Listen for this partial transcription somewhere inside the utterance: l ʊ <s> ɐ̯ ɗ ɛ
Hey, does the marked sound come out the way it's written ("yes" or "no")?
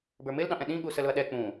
no